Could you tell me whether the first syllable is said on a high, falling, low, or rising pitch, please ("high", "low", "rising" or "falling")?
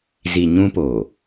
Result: low